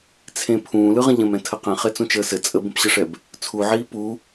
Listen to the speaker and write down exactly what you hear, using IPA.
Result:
t͡sʰ ẽ pʰ ũː l ɯ ʁ ə̃ ʎ ə̃ m ɛ̃ tʰ ə q ɛ̃ χ e t͡s ũ t͡ʃ əː s ɘ t͡sʼ ə b ə̃ p ɕ ə ʂ ɛ b | t͡sʰ u ʕ iː p u

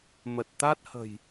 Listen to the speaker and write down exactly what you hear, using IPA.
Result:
m ə˨˩ t̚ t̪ a˦˥ t̚ h ə̤˨˩ j

